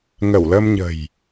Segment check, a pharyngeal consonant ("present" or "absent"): absent